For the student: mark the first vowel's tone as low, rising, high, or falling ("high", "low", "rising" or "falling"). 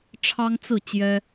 high